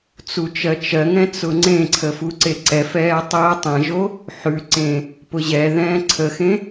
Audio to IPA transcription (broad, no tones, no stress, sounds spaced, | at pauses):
t͡s u t͡ʃ ɜ t͡ʃ ɜ ŋ ɛ̃ t͡s ʊ ŋ͡ǀ ẽ ǀʰ ə f u ǀ e ǀ ɛ f ɛː tˤ əː tˤ ẽ ʒ o | ħ ʉ ǀ ẽ | p ʊ ʑ ɛ ð ɛ̃ː ǀʰ ə x ẽ